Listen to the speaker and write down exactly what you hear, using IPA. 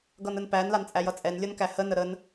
ɡʌnənpæn lant͡sʼæjʌt͡sʼɛn lʲʌnkæhə nəɾən

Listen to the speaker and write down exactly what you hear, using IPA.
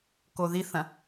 koðiθɐ̃

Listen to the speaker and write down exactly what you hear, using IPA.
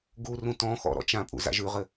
ɡurũ tɔ̃xɔ̰ ɾɔ̰t͡ʃãpʼṵ za̰ʒʉʁɘ

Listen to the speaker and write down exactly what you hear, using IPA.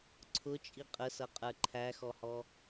ǀʰʊt͡ʃʼi qʼəsʌqʼə˞ ǃʰæxɔhɔ

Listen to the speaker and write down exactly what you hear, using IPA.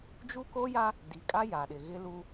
d͡ʒu˦ko˦ja˦ | di˨kʼa˦ ja˨ɗɪ˨ ɣɪ˦lu˦

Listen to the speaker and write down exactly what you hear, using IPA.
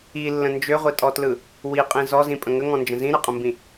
ilːə̃ nd͡ʒøʁʷitʼɔtlɯ | wiqʼĩ zɔzĩpʼə̃ ŋəŋɔ̃nd͡ʒə̃ zĩɾɯqʼə̃mbĩ

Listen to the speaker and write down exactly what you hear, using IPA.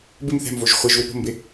bɪm θɛ̤mvoʒ χʷeʒwɪ po̤mbɪ

